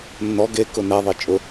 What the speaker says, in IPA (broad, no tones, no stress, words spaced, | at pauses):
nːɔ ɡe kʊnɛðˤi t͡ʃʼʊ